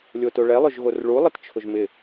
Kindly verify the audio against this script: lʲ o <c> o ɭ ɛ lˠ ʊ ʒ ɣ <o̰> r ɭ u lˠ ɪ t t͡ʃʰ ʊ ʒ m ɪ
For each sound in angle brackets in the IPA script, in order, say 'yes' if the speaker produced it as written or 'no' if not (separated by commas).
no, no